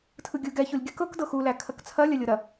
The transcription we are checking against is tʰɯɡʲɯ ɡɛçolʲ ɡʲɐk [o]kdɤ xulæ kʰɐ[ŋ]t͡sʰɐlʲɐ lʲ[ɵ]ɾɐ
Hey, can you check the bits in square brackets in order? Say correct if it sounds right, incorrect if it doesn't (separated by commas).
incorrect, incorrect, incorrect